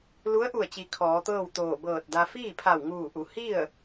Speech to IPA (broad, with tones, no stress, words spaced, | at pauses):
lu˧˥ə̯ʔu˧˩ə̯t͡ɕi˩˧ kʰɔː˩˧t̪ɤː˥˨wt̪oː˧˩ bɤː˧˩t̚da˧ fiː˥˨pʰa˧˩wŋuː˧˩ʔu˩˧ hi˥˨ə̯